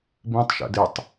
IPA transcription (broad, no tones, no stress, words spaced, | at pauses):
bĩtˤ ʃɛ̰dɪtˤ